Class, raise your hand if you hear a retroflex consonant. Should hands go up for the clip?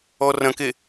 no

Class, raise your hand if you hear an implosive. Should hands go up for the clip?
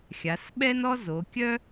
yes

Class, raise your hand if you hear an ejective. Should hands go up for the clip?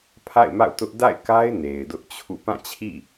no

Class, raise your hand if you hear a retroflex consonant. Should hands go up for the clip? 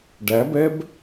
yes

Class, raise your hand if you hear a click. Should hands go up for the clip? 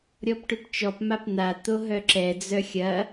yes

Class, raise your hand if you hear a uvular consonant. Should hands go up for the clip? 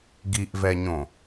no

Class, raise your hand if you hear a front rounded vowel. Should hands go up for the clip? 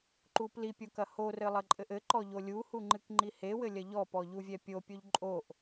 no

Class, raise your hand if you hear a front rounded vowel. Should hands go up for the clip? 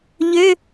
yes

